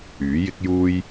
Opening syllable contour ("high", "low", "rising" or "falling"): rising